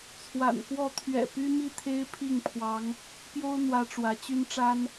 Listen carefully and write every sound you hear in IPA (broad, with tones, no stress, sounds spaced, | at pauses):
t͡sʰ w a̰˨˩ n k w ɔ˥˨ t̪ʰ ɥ ɛ̰˨˩ p y˦ m i˥˨ t̪ʰ e˦ ɪ̯ pʰ i˥˨ ŋ pʰ w ɑ˨˦ ŋ | p j o˦ ʊ̯ n̪ w ä˦ ʈ͡ʂ w ä˨˦ t͡ɕ y˦ n ʈ͡ʂ a˦ n